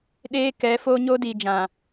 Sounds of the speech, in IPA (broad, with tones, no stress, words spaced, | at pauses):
ɗeː˦ kɛ˨˦foː˦ɲo˦ diː˨d͡ʒã˨